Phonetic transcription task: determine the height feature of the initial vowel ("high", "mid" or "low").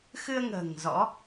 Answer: high